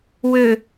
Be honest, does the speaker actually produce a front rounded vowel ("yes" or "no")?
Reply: yes